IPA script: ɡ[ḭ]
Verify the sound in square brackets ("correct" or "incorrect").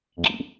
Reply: correct